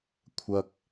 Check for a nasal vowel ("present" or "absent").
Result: absent